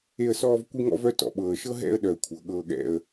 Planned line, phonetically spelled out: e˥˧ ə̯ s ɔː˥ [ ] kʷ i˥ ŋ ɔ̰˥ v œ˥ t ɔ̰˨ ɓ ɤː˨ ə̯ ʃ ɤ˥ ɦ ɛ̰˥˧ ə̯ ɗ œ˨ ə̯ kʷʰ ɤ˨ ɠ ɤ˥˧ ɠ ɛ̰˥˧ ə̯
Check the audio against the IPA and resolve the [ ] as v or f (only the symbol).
v